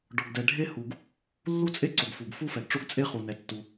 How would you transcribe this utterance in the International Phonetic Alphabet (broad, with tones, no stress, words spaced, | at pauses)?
ɖɔ˩ɡdɛ˩ɖʱe˥ hu˩ɡ | lːu˥t͡sʼe˥ǀo˩ɡ fu˩ɡ fu˥fɛ˩ɡ ʈ͡ʂo˥ɡt͡sʼe˥ χu˩nɛ˩tːu˩